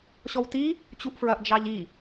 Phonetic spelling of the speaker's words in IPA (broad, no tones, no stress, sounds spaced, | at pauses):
ɕ ɔ w t i | t͡ɕ u ʔ f ɹ ɐ ʔ d͡ʒ ɑ ʎ i